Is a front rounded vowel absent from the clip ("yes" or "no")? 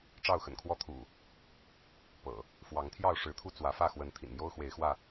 yes